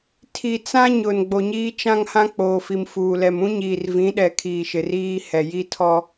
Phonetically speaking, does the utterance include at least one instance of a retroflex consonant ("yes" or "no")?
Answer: no